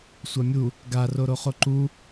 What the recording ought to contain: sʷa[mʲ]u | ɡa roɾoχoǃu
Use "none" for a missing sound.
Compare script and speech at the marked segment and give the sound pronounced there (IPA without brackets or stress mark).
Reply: mʲ